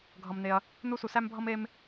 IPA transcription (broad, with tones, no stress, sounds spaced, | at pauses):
ɡʱ ʌ˧ m n e˧ ɐ̯ | n u˦ s u˧ s æ˦ m bʱ ʌ˦ m e˦ m